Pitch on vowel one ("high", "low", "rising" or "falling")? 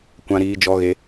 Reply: high